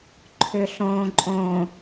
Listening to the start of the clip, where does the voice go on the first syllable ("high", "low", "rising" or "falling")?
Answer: low